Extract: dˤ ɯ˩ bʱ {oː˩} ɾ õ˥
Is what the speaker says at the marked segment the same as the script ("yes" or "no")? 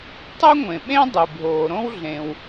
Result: yes